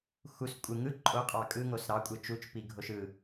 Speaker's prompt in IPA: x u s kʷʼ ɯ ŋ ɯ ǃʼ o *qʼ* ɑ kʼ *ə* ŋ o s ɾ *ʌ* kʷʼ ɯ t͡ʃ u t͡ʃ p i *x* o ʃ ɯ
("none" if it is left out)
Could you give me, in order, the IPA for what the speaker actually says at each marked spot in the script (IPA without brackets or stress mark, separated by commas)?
qʼ, ɯ, ɑ, ɡʱ